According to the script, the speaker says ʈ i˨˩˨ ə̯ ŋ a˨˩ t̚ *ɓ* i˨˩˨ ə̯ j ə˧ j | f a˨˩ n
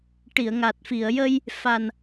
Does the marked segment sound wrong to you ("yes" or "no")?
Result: yes